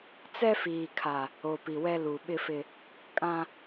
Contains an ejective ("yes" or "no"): yes